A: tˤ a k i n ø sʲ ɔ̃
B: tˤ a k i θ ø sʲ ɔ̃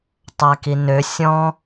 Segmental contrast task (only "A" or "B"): A